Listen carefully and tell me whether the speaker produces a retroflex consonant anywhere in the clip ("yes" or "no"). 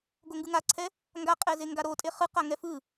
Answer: no